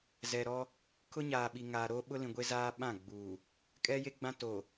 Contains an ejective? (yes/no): yes